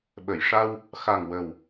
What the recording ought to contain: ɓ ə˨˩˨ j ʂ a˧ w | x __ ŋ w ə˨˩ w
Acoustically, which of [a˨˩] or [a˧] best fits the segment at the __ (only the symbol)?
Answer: a˨˩